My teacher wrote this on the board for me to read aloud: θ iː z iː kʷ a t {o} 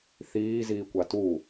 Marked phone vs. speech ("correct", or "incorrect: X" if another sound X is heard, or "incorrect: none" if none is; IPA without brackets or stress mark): incorrect: u